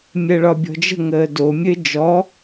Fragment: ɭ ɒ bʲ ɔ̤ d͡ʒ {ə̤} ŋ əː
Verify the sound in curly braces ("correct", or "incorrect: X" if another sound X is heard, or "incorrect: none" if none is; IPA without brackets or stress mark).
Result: correct